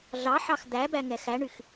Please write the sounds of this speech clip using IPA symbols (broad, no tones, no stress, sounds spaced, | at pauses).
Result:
ɮ ɑ ħ ɑ x d̪ æ b æ ŋ ɛ x æ ɳ y x